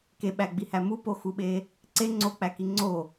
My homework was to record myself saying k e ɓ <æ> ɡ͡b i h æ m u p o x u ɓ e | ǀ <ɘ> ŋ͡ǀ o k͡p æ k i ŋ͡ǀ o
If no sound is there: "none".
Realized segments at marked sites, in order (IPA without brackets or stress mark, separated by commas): æ, e